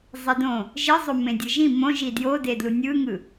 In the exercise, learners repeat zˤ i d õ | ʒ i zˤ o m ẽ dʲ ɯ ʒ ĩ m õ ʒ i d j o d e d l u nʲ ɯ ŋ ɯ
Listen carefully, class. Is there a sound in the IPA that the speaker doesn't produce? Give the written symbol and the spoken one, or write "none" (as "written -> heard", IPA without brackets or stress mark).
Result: none